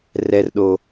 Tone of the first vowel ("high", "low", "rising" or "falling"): low